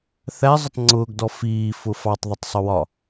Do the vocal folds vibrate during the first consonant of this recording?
no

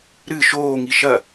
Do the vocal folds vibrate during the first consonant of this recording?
yes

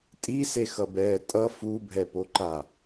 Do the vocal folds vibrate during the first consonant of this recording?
no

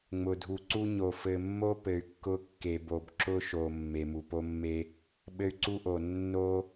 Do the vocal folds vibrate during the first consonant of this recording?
yes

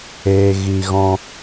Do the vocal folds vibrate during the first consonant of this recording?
yes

